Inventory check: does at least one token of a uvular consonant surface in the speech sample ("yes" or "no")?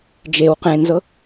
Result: yes